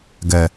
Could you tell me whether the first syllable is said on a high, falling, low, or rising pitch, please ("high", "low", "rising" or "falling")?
low